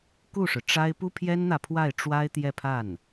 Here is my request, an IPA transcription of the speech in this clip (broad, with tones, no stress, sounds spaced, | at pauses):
k u˥˩ ʂ ɻ̩˩ ʈ͡ʂ a˥ ɪ̯ p u˥ pʰ j ɛ˥ n n̪ ä˨ pʰ w a˥˩ ɪ̯ ʈ͡ʂ w a˥ ɪ̯ t̪ j ɛ˥˧ pʰ a˥˩ n